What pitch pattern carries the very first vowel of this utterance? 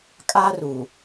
high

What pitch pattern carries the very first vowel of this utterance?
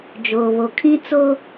low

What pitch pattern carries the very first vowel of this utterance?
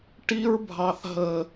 high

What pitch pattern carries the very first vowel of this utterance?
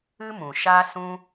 high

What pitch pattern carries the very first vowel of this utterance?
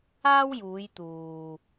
high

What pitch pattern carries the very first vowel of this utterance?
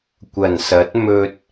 low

